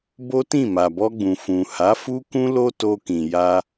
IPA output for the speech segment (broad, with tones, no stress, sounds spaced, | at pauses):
b o˦ t ĩ˦˨ m a˨ b ɔ˧ ɡ͡b ũ˨ f ũ˨ h a˨˦ f u˦ k ũ˦ l o˦ t o˧ k ĩ˨ j a˧